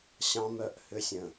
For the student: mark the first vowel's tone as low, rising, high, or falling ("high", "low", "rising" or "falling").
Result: high